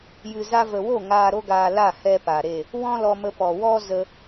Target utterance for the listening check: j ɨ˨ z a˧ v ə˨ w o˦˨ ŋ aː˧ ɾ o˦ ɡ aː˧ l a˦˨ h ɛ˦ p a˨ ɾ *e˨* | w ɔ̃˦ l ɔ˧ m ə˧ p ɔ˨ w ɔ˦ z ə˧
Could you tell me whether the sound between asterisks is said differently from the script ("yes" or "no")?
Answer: yes